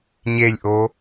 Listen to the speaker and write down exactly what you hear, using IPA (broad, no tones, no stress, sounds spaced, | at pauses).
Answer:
ɲ e lʲ ʔ o